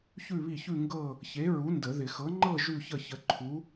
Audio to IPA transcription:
ç ʉ˥˧ β i˥˩ ç ʉ˥˧ ŋ ɡ ɤ˥˧ | ç e˨˥ ɹ u˨˥ n d ə˨˩˦ ð ɪ˨˩˦ x ɤ˨˥ ŋ͡ǃ ɤ˥˧ ʒ ʉ˥˧ ç ə˥˩ ç ə˨˥ ǃʰ u˨˥

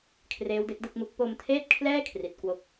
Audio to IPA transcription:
kʰ r eː˦˥ w d e˦˥ k̚ d ɯ˥˩ k̚ m u˦˥ k̚ p o˧ m tʰ eː˥˩ t̚ kʰ l ɛː˥˩ kʰ r i˨˩ t̚ k w o˥˩ k̚

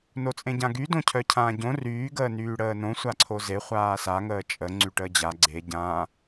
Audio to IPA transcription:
n o t͡sʼ ẽ ɟ ã ɡ y d õ cʰ œ cʰ ãː ɟ õ r yː ɡ əː n yː ɽ əː n õ sʷ a ǀʰ o z e χʷ aː s a ŋ əː t͡ʃʼ ə ŋ͡ǀ y ʈ əː d͡ʑ a ɡ͡ǀ e ɟ ã

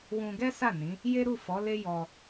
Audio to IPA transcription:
w ũ˧ ɡ ɛ˦ s a˦˨ n ĩ˨˦ | j e˦ ɾ u˦˨ f ɔ˨˦ l e˦ j ɔ˧

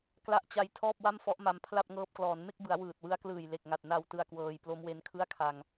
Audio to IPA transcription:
k l a˦˥ ʔ t͡ɕ a˧ j tʰ ɔː˥˩ p̚ w a˥˩ m f ɔ˦˥ ʔ m a˧ m pʰ l a˥˩ p̚ ŋ ɤː˦˥ p̚ k l ɔː˩˦ n m e˥˩ k̚ b ɯ˩˦ a̯ w ɯː˨˩ t̚ w ɯ˦˥ a̯ k l ɯː˨˩ j l e˨˩ k̚ ŋ a˨˩ t̚ n a˧ w t ɯ˧ a̯ k w ɤː˧ j p l o˦˥ m w e˧ n kʰ ɯ˥˩ a̯ kʰ a˧ ŋ

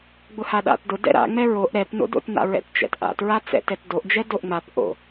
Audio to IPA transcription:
ɡ͡b ʊ h a ɗ a̰ t d ʊ d ɛ̰ ɾ a̰ ŋ͡m ɛ ɹ o ʔ ɾ ɛ p n o̰ d o̰ t n a̰ ɹ ɛ̰ t t͡ʃ ɛ̰ t ʔ a̰ t ɹ a t͡s ɛ̰ t ɛ t d o ʔ d͡ʒ ɛ d o ʔ ŋ͡m a p ʔ o̰

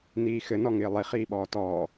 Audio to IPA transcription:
n iː x ɘ n ɔ ŋ ɪː lˠ i χ iː ɓ ɔː t ɔː

